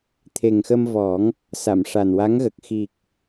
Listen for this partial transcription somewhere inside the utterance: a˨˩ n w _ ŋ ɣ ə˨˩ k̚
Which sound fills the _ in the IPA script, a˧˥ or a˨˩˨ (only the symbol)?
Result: a˧˥